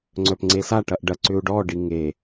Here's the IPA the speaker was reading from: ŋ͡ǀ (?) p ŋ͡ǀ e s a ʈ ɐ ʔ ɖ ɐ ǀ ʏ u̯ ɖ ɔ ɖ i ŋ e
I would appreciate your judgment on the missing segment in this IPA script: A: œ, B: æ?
A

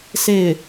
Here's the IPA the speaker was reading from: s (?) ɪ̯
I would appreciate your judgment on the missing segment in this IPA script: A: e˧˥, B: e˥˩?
B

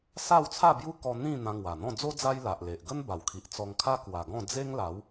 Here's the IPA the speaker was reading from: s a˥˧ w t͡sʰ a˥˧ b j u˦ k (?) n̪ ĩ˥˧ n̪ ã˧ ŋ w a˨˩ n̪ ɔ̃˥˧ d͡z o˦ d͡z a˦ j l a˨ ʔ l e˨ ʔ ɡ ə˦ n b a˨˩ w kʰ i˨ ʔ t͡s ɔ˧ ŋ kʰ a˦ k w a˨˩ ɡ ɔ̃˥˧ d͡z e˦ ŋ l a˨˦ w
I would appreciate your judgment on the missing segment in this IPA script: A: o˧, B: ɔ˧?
B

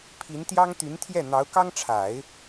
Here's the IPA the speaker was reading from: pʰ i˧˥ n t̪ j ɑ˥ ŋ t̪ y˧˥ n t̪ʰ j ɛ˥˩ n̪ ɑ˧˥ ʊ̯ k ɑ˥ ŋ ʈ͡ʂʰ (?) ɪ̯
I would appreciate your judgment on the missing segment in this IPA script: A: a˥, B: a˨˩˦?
B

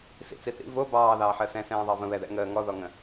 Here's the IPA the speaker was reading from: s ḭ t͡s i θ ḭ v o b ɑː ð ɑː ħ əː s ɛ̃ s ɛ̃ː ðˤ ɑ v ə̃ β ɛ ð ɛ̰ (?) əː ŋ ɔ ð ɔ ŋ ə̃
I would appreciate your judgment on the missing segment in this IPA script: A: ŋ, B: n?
A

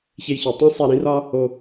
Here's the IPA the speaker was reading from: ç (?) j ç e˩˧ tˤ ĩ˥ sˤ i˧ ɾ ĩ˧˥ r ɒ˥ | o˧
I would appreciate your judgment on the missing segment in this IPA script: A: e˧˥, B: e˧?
B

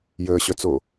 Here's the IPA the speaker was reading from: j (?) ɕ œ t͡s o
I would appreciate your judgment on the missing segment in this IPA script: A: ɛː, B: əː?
B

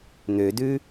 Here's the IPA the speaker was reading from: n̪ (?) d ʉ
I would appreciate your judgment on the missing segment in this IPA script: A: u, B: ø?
B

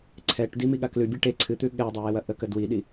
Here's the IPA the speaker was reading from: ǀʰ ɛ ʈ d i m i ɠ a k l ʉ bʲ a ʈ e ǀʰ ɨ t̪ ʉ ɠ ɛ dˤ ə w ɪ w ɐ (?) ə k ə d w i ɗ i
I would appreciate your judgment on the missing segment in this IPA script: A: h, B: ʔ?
B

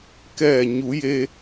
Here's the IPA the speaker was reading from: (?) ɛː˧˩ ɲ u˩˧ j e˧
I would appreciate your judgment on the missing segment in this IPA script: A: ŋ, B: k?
B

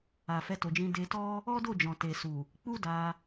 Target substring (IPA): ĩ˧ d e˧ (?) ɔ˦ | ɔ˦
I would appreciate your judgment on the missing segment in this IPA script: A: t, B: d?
A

